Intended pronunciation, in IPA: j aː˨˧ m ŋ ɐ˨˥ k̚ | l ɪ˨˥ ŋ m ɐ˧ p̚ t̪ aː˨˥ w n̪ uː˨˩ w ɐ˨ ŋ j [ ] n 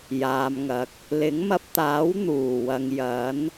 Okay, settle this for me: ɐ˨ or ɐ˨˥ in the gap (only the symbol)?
ɐ˨˥